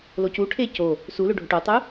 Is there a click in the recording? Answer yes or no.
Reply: no